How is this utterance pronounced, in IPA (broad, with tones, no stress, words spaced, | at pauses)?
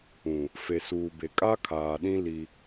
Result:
ũ˨ | fe˨suː˨be˨ kʼa˦kʰaː˨ɗĩ˦ li˦